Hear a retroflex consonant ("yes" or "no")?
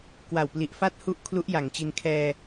no